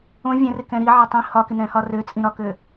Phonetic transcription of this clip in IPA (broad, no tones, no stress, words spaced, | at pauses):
õ vʲɛ̃rɪkɛ̃ ɾiʕʌ tˤĩ hɒkɪnɛ̃hɒ røt͡sʼĩ ɾɒkø